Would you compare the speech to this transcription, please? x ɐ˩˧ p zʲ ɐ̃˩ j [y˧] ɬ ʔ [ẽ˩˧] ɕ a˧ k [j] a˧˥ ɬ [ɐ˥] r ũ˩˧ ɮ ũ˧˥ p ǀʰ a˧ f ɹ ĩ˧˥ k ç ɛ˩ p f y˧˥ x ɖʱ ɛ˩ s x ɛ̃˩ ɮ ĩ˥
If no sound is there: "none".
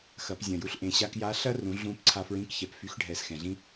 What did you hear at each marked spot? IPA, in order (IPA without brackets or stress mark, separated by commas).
u˧, ẽ˩, j, ɐ˥